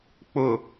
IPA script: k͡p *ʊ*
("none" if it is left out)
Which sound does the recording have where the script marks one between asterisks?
ʊ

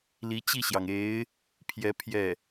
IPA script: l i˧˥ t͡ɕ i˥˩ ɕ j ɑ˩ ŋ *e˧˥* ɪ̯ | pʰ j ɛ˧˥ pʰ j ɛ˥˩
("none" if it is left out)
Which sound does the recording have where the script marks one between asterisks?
e˧˥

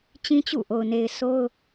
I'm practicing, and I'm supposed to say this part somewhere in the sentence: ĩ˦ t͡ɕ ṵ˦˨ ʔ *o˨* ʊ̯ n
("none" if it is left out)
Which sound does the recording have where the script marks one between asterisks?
o˨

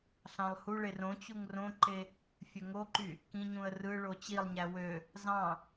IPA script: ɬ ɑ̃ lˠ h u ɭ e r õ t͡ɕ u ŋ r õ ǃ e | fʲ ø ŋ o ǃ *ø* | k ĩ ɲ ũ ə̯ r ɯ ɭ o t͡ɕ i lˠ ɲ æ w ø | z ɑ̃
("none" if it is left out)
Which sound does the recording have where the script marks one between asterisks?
y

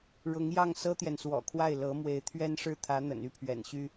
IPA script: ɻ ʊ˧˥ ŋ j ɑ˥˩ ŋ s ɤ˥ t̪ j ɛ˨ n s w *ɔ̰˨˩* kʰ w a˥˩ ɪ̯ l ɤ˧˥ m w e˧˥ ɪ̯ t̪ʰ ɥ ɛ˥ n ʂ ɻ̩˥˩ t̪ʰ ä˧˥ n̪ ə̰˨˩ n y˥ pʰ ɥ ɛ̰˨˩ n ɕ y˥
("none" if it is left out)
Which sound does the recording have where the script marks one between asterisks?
ɔ̰˨˩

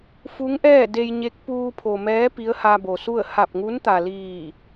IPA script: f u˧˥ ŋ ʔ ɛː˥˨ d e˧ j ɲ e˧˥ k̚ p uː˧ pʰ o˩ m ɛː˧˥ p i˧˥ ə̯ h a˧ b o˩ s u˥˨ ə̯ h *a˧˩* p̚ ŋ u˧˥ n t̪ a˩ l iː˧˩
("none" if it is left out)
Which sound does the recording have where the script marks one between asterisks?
a˧˩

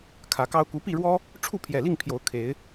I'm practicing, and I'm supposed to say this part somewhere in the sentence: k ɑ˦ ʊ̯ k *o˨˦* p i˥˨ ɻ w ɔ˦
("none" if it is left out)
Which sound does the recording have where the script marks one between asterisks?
u˨˦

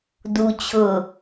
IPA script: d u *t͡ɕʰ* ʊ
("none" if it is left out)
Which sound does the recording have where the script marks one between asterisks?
t͡ɕʰ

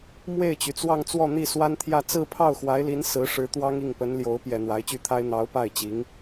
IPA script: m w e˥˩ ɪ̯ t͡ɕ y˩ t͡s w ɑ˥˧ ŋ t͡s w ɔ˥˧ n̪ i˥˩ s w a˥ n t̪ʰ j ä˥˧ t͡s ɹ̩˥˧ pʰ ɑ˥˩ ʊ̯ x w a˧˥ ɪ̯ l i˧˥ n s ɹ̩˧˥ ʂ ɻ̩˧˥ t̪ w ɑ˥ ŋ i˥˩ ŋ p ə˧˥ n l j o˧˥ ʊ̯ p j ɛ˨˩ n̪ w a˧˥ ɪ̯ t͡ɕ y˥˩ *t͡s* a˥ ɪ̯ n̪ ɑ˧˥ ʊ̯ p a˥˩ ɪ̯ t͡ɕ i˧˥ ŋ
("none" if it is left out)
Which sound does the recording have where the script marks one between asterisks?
t̪ʰ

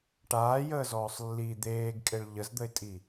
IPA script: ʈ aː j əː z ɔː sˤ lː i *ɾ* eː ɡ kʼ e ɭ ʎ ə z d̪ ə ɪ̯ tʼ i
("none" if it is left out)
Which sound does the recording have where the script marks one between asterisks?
d̪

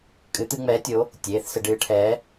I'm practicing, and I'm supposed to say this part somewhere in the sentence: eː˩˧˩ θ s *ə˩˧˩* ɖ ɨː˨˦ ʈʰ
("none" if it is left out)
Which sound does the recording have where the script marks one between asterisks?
ə˧˩˧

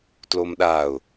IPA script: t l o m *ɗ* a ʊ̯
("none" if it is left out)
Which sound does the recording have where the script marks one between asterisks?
ɗ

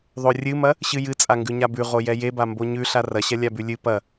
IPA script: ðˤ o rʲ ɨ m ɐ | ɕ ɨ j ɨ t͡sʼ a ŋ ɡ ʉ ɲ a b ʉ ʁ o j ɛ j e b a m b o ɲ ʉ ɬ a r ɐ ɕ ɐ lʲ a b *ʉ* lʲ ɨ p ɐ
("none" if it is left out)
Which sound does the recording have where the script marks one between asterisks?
ʉ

